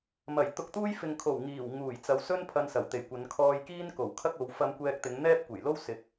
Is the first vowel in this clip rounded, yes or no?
no